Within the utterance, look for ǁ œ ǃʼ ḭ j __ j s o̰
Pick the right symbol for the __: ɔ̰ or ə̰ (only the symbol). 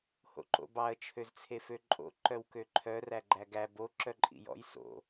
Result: ɔ̰